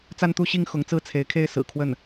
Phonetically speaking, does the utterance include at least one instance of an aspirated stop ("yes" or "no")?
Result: yes